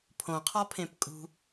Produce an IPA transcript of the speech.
pʰ õ qʰ ɒ pʰ ẽ p kʼ ṳ

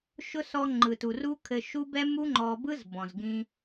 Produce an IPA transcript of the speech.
ʃ ʊ˦ s ɔ˧ ŋ͡ǃ ɯ˨ t u˨ r u˦ kʰ ɘ˧ ʃ u˦ b ɛ˦ m u˦ ŋ͡ǃ ɔ˧ b ɯ˦ z b ɔ̃˨ z ɡ ĩ˧

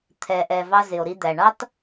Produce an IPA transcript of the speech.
t̪ʰ ɛ˨ ʔ ɛ˨ v ɑ˧ z ɪ˨ o̯ ɾ i˧ d̪ æ˨ ɳ ɑ˦ t

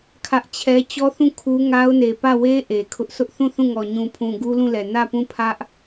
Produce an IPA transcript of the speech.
kʰ ä˦ ʔ t͡ɕʰ ɛ˦ t͡ɕ ɔ˦ θ ũ˦˨ kʰ u˦ ŋ a˦ ʊ̯ n e˨ p ä˦˨ w e˦ ʔ e˨ kʰ ʊ˦ ʔ sʰ ʊ˦ ʔ θ ũ˦˨ θ ũ˦˨ ŋ ɔ˨ ɲ ũ˨ pʰ ũ˨ ɡ u˦ l ũ˦˨ l ɛ˨ n ä˦˨ p ũ˦˨ pʰ ä˦ ʔ

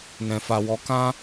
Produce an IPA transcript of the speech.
n ɛ̃˨ f a˨ w ɔ˨˦ k ã˦

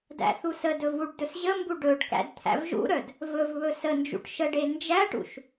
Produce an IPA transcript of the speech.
d æ̰ θ u s ə d ɵ v u ɖ d ɵ s ʑ ə m b u ɖ ɵ ɖ k æ̰ d t̪ʰ æ̰ v ʒ ṵ ɾ œ d | v ɵ v β ɵ s ə n d͡ʒ ṵ ʈ ʃ ə ɖ e n d͡ʒ æ ʈ ṵ ʃ

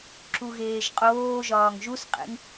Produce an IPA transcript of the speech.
ǁ u ɣ eː ʒ qʼ oː ʒ ɒː ŋ ʒ u s qʼ ḛ ŋ

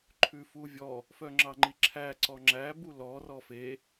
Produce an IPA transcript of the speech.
ǃʰ ʉ f u vʲ ɔ | f œ ŋ͡ǁ ɑ ŋ͡ǃ i ǁʰ æ ǀ ɔ ŋ͡ǁ æ b u l ɔ r ɔ f e

